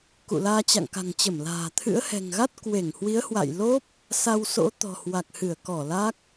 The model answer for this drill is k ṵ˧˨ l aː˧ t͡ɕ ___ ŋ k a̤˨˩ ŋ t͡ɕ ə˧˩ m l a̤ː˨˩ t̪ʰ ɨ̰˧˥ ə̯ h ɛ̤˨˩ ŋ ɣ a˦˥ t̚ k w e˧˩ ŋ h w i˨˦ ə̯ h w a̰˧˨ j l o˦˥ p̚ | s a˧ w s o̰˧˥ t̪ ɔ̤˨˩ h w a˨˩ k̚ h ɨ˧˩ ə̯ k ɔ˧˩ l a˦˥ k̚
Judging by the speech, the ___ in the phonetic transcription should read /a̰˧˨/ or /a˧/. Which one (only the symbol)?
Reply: a̰˧˨